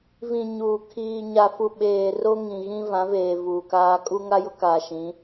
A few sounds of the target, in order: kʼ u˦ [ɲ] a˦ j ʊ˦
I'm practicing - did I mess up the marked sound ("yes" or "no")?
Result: yes